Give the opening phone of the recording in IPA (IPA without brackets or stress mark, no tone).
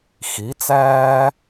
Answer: x